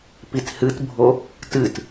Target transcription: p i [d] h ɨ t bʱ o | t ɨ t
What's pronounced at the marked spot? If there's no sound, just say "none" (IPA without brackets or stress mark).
t